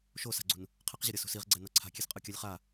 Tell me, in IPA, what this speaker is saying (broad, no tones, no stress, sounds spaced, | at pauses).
ʃ o s a̤ ɡ͡ǀ ṳ n | qʰ ɛ q ʑ ʌ ɾʲ ʌ s ṳ s i ʁ ɡ͡ǀ ɛ n ʌ ǀʰ a̤ kʲ e s qʼ ɯ kʲ a lʲ χ a